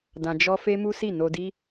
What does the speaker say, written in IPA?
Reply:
d ã˧ d͡ʒ ɔ˦ f e˦ m u˦ s i˦˨ n o˧ d i˦

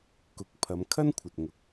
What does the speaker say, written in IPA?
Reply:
k ʊ˨˥ k̚ pʰ ɐ˨˧ m kʰ ɐ˥ n kʷʰ ɐ˨ t̚ ŋ ʊ˨˥ k̚

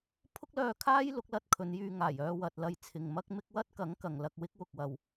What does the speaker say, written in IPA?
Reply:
pʰ ʊ˥ k̚ l œː˧ kʰ aː˥ j l ʊ˨˥ k̚ l ɐ˥ t̚ kʰ ɵ˨˧ n j yː˧ ŋ aː˨˩ j œː˧ w ɐ˨ t̚ l ɐ˧ j t͡sʰ ɪ˨ ŋ m ɐ˥ k̚ m ɪ˥ k̚ w ɐ˥ t̚ k ɐ˨˥ ŋ k ɐ˨ ŋ l ɐ˧ k̚ w ɪ˥ k̚ w ʊ˨ k̚ w ɐ˨ w

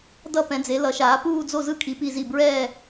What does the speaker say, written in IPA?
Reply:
d ʌ˥˨ p ɛ̃˨˥ d͡z e˨˥ l ʌ˨˥ ʃ aː˨˥ p uː˥˨ d͡z o˥˨ z ɯ˥˨ kʰ i˨˥ p i˥˨ z i˥˨ b ɹ ɛː˥˨

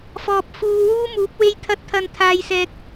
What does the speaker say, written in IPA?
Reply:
f ɔː˨ p̚ f uː˨ w uː˥ m uː˨˥ p̚ w e˥ j t̪ʰ ɐ˥ t̚ t̪ʰ ɐ˧ n t̪ʰ aː˧ j s ɛː˧ k̚

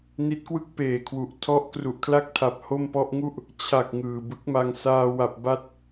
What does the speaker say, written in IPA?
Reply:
n i˦˥ t̚ k w ɯ˥˩ k̚ p eː˨˩ kʰ w u˨˩ ʔ tʰ ɔ˦˥ ʔ k r u˨˩ ʔ kʰ l a˥˩ k̚ tʰ a˨˩ p̚ h o˥˩ m p ɔ˦˥ ʔ ŋ u˥˩ ʔ | t͡ɕʰ a˨˩ k̚ ŋ ɯː˨˩ b ɯ˦˥ k̚ m a˧ ŋ s aː˧ w a˨˩ p̚ b a˦˥ t̚

